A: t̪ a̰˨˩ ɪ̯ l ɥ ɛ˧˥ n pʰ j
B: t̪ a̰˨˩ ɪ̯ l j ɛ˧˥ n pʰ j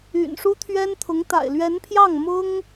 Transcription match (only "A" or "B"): A